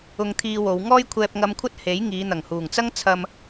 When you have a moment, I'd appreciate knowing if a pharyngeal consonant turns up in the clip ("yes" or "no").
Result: no